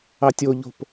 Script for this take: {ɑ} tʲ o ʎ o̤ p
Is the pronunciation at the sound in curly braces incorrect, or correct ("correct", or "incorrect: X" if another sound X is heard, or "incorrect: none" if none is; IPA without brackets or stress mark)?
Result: correct